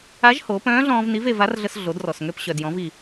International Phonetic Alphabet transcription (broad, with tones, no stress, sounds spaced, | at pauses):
a˧˥ ʒ h oː˩˧ p œ̃ː˧˥ ɮ ɔ̃ː˧ v n i˧˥ v e˧ v a˧˥ r ɮ ə˧ s ɮ o˩˧ d r ɔ˩ s ŋ ø˧ p ɕ œ˩ d j ɔ̃˩˧ v i˩